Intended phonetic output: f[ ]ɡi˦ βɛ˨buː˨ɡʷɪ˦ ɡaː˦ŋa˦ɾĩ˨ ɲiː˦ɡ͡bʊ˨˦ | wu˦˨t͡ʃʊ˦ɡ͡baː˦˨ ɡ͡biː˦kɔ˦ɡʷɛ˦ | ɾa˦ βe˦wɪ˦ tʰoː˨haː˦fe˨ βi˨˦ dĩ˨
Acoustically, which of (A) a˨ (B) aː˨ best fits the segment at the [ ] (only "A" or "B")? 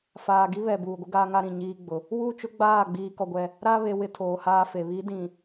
B